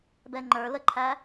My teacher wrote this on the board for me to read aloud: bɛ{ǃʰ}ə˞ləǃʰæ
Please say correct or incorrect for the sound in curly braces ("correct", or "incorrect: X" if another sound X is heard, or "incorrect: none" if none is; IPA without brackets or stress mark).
incorrect: ŋ͡ǃ